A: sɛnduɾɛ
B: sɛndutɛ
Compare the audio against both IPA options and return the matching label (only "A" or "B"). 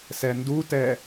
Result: B